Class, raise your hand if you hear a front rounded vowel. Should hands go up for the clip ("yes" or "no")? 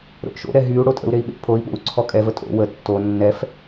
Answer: yes